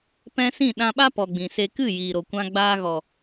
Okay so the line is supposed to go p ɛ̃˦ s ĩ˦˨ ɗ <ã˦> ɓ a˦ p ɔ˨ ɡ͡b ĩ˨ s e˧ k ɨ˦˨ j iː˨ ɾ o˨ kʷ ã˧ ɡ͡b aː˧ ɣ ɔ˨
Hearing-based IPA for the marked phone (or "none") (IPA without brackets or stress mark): ã˧